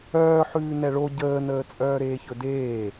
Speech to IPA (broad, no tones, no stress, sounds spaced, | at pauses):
œː ħ ʉː n ɛ ɭ o ɟ əː n əː t͡sʼ œː ɾ eː ç ɵ d eː